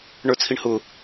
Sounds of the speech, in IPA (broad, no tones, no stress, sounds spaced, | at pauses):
ɳ ə˞ t͡sʰ i ɳ h ʊ